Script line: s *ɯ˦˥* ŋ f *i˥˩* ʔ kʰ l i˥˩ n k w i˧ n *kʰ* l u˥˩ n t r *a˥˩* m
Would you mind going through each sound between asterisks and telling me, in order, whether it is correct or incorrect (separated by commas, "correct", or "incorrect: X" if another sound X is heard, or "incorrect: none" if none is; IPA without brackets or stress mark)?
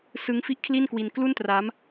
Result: correct, correct, incorrect: k, incorrect: a˦˥